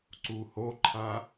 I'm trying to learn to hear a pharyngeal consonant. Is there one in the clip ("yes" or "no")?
no